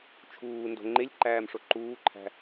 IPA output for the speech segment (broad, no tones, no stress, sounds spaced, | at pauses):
t͡ʃʰ uː n d o̤ ŋ͡ǃ e lʲ ǃ æː m ʂ o ǃ uː ǃʰ æ̤